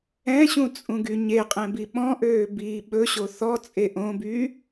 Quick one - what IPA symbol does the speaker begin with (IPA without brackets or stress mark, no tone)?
ɛ̃